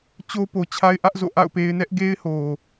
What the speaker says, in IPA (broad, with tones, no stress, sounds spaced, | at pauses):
t͡ɕ o˦ p o˨ t͡ɕʰ a˦ ɪ̯ ʔ ä˦ ʔ z o̰˦˨ ʔ a̰˦˨ ʊ̯ p e˦ ɪ̯ n ɛ˦ ʔ ɡ e˦ ɪ̯ h o˨